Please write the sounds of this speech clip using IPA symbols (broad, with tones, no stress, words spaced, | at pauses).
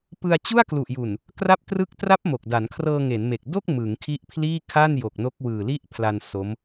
pɯ˧a̯ t͡ɕu˥˩a̯klu˨˩ʔju˨˩n | kra˥˩p̚trɯ˥˩k̚ tra˦˥p̚ mo˨˩k̚da˩˦n kʰrɤː˧ŋe˩˦nme˨˩k̚ do˥˩k̚ mɯ˩˦ŋkʰi˦˥ʔpʰliː˥˩ kʰa˥˩n jo˨˩k̚no˦˥k̚ wɯː˨˩li˥˩ʔpʰla˧n so˦˥m